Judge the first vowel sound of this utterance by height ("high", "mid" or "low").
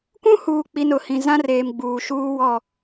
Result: high